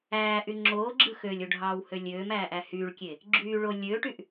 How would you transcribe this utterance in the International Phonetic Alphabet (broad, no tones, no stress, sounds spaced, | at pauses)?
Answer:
æː ʔ y ŋ͡ǁ oː ɡ͡ǁ ɯ x ø lʲ o ɖʱ ɑː w h ø lʲ øː m æː ʔ æ h yː ɭ kʲ e | ɡ͡ǁ yː ɭ o lʲ øː ʈ y ʔ